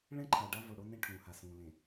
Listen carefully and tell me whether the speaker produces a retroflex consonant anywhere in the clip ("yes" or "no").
yes